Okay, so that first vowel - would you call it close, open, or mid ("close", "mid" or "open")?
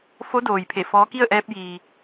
mid